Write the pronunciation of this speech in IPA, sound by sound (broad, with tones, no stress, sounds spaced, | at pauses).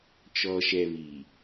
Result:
t͡ʃ ɔ˨ ʃ ɛ˨ β i˨